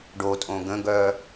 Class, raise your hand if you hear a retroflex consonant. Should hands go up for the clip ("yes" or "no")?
yes